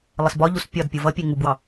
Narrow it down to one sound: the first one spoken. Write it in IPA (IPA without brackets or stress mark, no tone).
lˠ